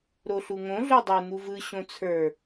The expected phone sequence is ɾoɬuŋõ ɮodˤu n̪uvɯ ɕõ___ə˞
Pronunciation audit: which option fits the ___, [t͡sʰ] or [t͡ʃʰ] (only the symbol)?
t͡sʰ